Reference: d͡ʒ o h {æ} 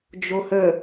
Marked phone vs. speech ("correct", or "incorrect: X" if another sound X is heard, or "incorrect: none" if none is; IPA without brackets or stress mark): incorrect: ə